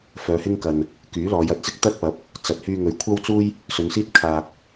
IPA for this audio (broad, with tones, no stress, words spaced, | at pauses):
fœː˨˧hɪ˥ŋkɐ˨n | kyː˨˥lɔː˨˧jɐ˧t̚t͡sɪ˥k̚ t̪ɐ˥t̚pɐ˨˥p̚ | t͡sɐ˨t̚hyː˧ ŋɵ˨˧ɥkʷʰɐ˥wt͡suː˥j | sɵ˨˧nsiː˥t̚ kʰaː˨k̚